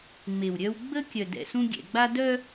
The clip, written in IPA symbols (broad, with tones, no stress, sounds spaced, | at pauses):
ŋ͡m e˨ w ɾʲ œ˦ w ɡ͡b ə˦ kʲ œ˨ d ɛ̰˨ s ũ˦ ɡʲ ɛ̰˨ ɡ͡b a˦ d œ˦